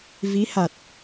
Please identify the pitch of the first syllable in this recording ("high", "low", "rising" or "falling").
rising